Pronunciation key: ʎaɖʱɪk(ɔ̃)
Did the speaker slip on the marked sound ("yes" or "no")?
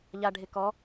yes